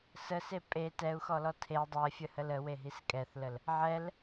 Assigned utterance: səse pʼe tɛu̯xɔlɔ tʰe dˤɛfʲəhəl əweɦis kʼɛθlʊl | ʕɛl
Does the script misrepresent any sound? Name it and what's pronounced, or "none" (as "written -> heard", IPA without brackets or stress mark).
ʊ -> ə